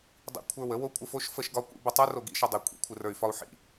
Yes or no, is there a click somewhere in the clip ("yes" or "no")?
no